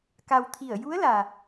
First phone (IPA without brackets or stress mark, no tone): k